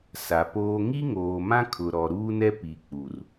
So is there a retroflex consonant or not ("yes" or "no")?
no